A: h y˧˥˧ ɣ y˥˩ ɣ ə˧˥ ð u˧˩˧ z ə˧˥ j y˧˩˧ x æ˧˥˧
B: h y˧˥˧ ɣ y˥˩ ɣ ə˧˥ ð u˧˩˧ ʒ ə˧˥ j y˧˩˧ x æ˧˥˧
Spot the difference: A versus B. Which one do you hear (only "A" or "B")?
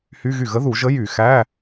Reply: B